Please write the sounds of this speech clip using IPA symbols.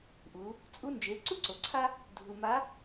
ʔ u˨˦ | t͡sʼ u˦ n d͡ʒ e˨˦ ǀ u˦ ǀ o˨ ǀʰ a˦ | dʱ u˨ m a˨˦

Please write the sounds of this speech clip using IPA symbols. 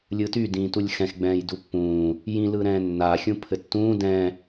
lʲ ɯ t y d ĩː t u lʲ x ɛ̃ x ɡ͡b ɛ̃ː j d u pː ũː | j ĩ l ɯ ɾ ɛ̃ː nː a xʲ ũ pʰ ɘ tː ũː d ɛ̃

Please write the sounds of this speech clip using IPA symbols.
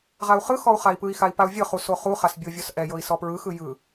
ʁ a u̯ χ ɯ x ɔ u̯ χ a i̯ p ɯ i̯ x a i̯ p a u̯ vʲ ɤ χ u s o χ u χ a s bʲ o vʲ ɔ s ʔ ɛ j ɤ i̯ s ɔ p ɹ ɯ x ɯ j ɯ

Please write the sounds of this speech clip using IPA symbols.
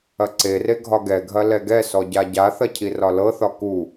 ɐ ǀ e r e ɡʱ ɒ ɡ ɛ ɡʱ ɐ l ɛ ɡ ɛ s ɔ ɟ a ɟ a θ ɐ cʰ i r ɒ l ɤ θ ɒ k u

